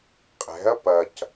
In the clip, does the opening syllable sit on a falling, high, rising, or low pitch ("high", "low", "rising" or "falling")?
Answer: rising